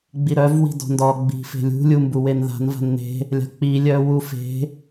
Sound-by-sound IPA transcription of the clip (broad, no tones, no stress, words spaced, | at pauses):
ɡ͡biɾœv wi̤dɔ̤ndɔ ɡ͡bi̤fe̤lʲṳ lʲumbuwenða̤n va̤nːe̤ | lʲa̤k͡pi lʲœwufe̤